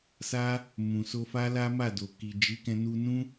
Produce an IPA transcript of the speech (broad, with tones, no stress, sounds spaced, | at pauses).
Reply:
s a˦ | m ũ˨ s o˧ f a˦ l a˦ m a˦˨ d o˨ k i˨ d͡ʒ i˨˦ k ɛ̃˧ n u˧ n ũ˦